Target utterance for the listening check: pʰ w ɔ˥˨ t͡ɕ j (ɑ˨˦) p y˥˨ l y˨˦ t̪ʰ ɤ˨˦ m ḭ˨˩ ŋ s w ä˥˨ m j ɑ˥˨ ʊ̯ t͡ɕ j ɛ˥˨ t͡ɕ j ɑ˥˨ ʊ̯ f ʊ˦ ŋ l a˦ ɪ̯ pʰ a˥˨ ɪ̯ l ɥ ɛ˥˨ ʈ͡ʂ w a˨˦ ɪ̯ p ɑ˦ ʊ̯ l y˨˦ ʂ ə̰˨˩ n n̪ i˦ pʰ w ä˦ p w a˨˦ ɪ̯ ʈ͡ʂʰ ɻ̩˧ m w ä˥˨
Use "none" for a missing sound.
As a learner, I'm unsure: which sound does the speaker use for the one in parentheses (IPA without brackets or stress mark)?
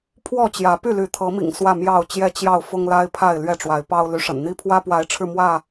ä˨˦